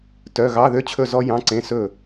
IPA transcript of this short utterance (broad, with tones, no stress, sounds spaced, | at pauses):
t œ˧˥˧ ɣ ɑ˧˥˧ ð ø˦˥ t͡ɕʰ ɵ˥˨ z ɔ˦˥ j ɑ̃˧˥˧ ǀ ẽ˧˥˧ s ɵ˥˨